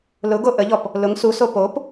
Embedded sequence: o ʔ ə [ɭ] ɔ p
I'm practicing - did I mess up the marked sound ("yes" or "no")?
yes